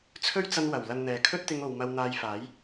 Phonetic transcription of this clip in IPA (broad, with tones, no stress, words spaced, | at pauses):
t͡sʰɵ˥ɥt͡sɐ˧n wɐ˨˩w lɐ˧nn̪ɛː˨ kʰɵ˥t̚t̪ɪ˧ŋo˨w mɐ˧wn̪aː˧jfaː˨˥j